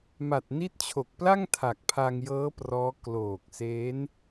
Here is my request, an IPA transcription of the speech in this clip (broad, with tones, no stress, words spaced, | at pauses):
ma˨˩t̚ni˦˥t̚t͡ɕʰo˨˩k̚pla˥˩ŋ tʰa˨˩k̚pʰa˧ŋjɤː˦˥ prɔː˦˥ kloː˨˩k̚se˦˥n